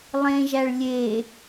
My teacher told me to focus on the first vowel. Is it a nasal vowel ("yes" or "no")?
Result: yes